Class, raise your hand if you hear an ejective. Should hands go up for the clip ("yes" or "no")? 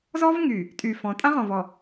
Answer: yes